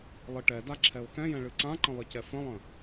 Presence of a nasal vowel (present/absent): present